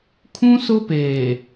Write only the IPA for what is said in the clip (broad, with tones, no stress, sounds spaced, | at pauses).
kʰ ũ˦ s ʊ˦ p eː˨